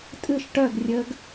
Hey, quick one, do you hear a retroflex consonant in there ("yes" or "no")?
yes